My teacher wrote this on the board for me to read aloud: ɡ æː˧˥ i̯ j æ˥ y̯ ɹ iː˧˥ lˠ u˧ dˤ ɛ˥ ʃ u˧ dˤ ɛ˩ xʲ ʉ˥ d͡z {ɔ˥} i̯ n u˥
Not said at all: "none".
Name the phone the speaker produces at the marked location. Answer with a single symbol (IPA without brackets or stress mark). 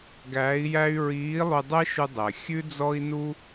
ɔ˥